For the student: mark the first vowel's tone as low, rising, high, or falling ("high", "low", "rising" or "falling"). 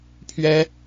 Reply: high